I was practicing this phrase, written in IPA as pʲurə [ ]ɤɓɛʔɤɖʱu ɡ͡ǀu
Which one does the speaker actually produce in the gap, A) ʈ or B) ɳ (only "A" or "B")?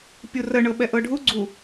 B